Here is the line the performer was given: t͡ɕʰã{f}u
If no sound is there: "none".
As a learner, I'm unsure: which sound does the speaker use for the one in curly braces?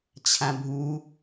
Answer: bʱ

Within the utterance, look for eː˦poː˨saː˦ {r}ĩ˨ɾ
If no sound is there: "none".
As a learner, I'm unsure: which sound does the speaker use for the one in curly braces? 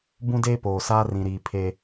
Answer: r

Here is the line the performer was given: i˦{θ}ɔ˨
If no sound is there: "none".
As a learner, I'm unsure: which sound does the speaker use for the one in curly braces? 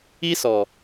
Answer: s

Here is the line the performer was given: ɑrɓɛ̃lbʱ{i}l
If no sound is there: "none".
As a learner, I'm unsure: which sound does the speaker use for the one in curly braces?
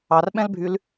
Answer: y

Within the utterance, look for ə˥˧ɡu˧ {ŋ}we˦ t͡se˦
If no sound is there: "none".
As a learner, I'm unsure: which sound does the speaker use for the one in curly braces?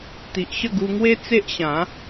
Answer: ŋ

